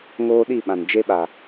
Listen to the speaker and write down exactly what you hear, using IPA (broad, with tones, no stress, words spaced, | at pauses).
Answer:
ŋoː˦ɗi˦˨ɓã˨n d͡ʒe˦ɓa˨